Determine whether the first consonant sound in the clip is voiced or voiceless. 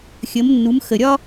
voiceless